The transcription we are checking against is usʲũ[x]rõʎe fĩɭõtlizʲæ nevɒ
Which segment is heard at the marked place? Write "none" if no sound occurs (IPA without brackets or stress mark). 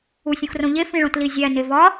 x